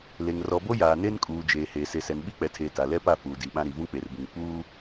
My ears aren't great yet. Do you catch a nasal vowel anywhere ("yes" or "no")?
yes